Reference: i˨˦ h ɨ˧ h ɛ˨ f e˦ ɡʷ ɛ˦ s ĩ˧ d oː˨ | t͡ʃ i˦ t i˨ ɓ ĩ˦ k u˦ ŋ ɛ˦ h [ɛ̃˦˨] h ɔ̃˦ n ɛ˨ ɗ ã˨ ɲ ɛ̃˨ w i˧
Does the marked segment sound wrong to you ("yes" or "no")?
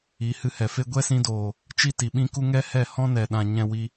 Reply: yes